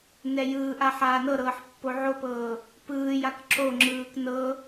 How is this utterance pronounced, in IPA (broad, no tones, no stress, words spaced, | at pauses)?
nɛjɯːʔa ħaːnɤɾɤːħ pːoʕopɤː | pɯːjak ǁoŋ͡ǁɯːk nɤ